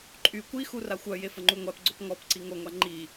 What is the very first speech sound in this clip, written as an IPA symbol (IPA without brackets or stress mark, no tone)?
ǃʼ